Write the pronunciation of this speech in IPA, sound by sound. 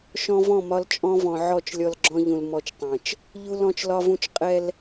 ʃ ɔ̃˦ v ɔ̃˦˨ m ɒ˦ l t͡ʃʼ ɔ̃˦ v ɔ̃˨ ʕ ɔ˦˨ t͡ʃ lʲ ɔ˦ l ɡ͡ǁ ɔ̃˦ ʎ ũ˨ l m ɔ˦ t͡ʃ tˤ ɛ̃˨ t͡ʃ | ʎ u˦ l ɔ̃˦ t͡ʃ l ɒ˦ v ũ˦ t͡ʃ qʼ ɛ˦ l

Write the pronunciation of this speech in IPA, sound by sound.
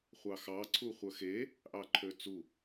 χʷ ɑ x ɑ ǀʰ u χʷ œ x e | ʔ ɑ ǃʰ ø t͡s u

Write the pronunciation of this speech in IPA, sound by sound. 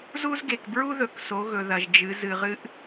z u˥ z ɡ e˩ k b ɹ u˥ ð ɵ˩ k s o˩˧ ɣ ɵ˩ ð ɐ˩ ʒ d͡ʒ ɨ˩˧ z ɨ˩ ʁ ɨ˧ ʔ

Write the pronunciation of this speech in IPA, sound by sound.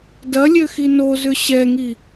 d ɐ lʲ ø x i n o z ʏ ɕ ɛ ŋ i

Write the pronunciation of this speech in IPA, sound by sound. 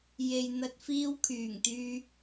j e˨ j n̪ ɐ˧ t̚ f iː˧ w kʰ yː˨˩ ŋ t̪ yː˧

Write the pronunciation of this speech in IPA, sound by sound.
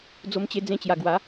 d͡z o˦ m t͡ɕ e˦ d͡z ẽ˦ t͡ɕ j a˧ ɡ w a˨˦

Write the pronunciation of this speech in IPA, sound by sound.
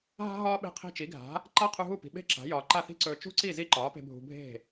ɦ a̤˧ ɦ ɒː˧ ɓ e̤˧ qʰ i̤˧ t͡ʃ i˩˥ ɡʱ a̤˩˥ | ǃ a˥ qʰ u˧ ɦ u˥˩ p i̤˩ ɓ e̤˥ ǁ a̤˩˥ j ɒː˩ ǃ a˥˩ θ i̤˥ ǀ ɵː˧ t͡ʃ ṳ˥ ǀ i˥˩ z i˥ ǃ ɒː˩˥ p e̤˧ bʱ ṳ˧ bʱ e̤˥˩

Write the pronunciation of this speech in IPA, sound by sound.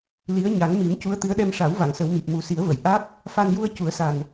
l i˧˥ ə̯ ɲ a˨˩˦ ŋ m i˨˩˦ m c u˧˥ ə̯ t̪ ɨ˧˥ ə̯ ɗ ɛ˧ m ʂ a˨˩˦ w v a˨˩˨ ŋ s ə˨˩˦ w m i˨˩ p̚ m u˨˩ s i˨˩˦ ə̯ v ə˨˩˨ j ʔ a˦˥ k̚ | f a˧ n j u˧ ə̯ c u˨˩˦ ə̯ s a˨˩ n

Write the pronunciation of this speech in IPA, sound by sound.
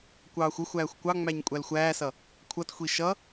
kʷ ɑː xʷ ə xʷ æː xʷ kʷ ɑ ŋ͡m æ ɲ kʷʼ æ l xʷ æː s ʌ | kʷʰ ʌ t xʷ i ʃ ʌ

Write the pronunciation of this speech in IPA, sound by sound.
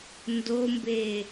n d o m b eː

